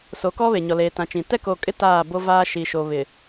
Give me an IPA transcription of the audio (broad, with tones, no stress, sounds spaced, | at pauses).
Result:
s o˨˦ k ɔ˦ β e˨ ɲ ɔ˨ l eː˨ t ã˨ t͡ʃ ĩ˨ t ɛ˦ k o˨ kʼ ɪ˦ t aː˦˨ b o˦ v aː˦ ʃ i˨ ʃ o˨ β ɪ˨